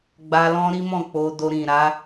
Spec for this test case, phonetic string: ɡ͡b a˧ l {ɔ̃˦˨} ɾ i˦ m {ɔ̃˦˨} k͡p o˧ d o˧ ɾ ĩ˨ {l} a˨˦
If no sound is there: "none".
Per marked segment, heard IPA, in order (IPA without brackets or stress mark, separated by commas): ɔ̃˦, ɔ̃˦˨, ɾ